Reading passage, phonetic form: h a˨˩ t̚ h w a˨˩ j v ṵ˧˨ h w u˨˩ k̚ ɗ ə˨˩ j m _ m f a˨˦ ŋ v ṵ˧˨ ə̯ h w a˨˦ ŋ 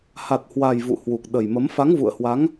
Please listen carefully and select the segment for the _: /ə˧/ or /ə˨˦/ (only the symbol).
ə˨˦